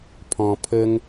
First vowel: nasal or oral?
nasal